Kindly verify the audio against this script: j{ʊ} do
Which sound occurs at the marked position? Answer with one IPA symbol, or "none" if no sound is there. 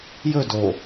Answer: ɵ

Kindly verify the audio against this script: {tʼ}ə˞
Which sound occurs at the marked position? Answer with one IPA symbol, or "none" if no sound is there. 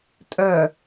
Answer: tʼ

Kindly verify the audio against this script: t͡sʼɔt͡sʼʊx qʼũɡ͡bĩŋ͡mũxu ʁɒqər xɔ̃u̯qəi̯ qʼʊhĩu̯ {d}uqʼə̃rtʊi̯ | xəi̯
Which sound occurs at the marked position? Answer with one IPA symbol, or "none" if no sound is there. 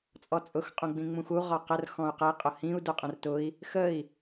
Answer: d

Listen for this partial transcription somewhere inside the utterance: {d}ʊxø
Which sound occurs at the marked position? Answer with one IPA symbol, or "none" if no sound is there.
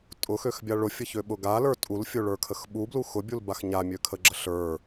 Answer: tʼ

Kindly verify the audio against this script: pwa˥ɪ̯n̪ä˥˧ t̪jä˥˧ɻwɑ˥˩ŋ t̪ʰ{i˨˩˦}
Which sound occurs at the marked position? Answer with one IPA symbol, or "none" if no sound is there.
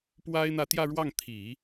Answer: i˨˩˦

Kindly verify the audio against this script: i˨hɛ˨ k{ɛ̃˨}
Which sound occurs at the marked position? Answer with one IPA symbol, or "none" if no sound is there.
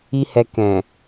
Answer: ɛ̃˨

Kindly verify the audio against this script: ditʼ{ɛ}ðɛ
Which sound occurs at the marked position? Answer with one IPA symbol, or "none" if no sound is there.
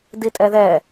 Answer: ɛ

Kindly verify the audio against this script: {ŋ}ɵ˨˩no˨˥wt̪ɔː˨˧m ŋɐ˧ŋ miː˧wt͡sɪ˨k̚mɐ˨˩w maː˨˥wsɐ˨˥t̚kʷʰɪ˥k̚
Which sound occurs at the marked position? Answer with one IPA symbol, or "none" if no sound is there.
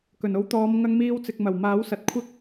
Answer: k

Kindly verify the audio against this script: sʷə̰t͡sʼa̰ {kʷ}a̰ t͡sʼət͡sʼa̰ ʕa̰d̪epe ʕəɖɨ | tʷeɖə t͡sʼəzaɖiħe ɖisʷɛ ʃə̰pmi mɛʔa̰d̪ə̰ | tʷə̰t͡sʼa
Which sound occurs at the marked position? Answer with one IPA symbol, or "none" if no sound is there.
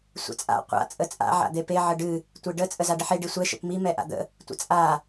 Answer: qʷ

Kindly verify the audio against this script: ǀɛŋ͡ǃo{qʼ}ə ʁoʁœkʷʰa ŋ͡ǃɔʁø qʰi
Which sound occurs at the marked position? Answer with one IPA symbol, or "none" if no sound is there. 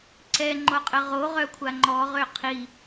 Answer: qʼ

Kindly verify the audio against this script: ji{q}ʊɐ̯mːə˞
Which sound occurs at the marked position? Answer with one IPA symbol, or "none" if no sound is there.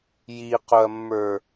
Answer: q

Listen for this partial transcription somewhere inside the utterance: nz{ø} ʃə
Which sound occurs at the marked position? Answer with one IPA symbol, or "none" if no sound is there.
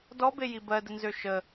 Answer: ø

